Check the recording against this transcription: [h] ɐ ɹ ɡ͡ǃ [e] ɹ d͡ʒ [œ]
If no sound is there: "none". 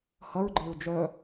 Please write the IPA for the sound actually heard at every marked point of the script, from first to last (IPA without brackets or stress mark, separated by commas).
h, e, œ